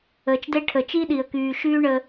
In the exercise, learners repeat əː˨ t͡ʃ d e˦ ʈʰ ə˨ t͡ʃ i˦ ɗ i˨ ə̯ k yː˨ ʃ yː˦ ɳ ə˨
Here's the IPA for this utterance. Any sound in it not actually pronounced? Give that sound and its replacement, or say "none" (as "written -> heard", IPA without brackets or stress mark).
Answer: none